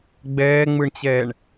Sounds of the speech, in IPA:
ɡ͡b ɛː ŋ͡m ɯ ɳ t͡ɕ ɛː ɳ

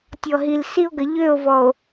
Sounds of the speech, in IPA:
tʲ ɔ˨ ɦ i˨ l s i˦ o̯ ɡ ə˨ ʎ ø˦˨ o̯ v ɔ˨ o̯

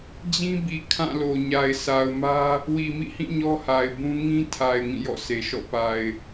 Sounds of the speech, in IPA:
d͡ʑ ĩ˦ b i˨ kʰ ã˦˨ l o˨ ɲ a˨ ɪ̯ s a˨ ʊ̯ m ä˦ | w i˨ m ḭ˦˨ h ĩ˦˨ ɲ ɔ˦ h a˨ ɪ̯ b ũ˦ ŋ ĩ˦ tʰ a˨ ɪ̯ ŋ ĩ˦˨ j ɔ̰˦˨ s e˨ ʃ ɔ̰˦˨ p a˨ ɪ̯

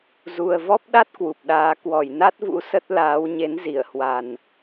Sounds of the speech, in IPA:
z u˨˩ ə̯ v ɔ˦˥ p̚ ɗ a˦˥ t̚ k w u˨˩ p̚ ɗ aː˧ k w ɔ˧˩ j n a˦˥ t̚ v ṵ˧˥ s ə˦˥ t̚ l aː˨˦ w ɲ e˨˦ n z i˧˩ ə̯ h w a˨˩ n

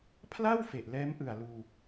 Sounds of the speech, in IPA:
pʰ l a˥˩ w f e˨˩ ʔ l ɛː˦˥ m ʔ ɯ˨˩ a̯ l uː˧

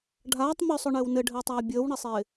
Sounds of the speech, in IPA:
ɖʱ aː tˤ m ɵ sˤ ɵ ɳ ɘː w n ɘ ɖʱ ɘː tˤ aː bʲ əː w ɳ ɪ sˤ ɪː

